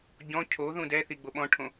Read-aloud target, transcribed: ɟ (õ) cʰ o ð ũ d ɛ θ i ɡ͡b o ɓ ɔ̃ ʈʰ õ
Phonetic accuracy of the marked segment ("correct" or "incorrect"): incorrect